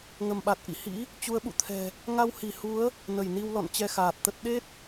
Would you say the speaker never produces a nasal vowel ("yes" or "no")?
yes